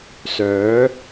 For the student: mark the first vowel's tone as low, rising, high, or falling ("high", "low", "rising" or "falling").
rising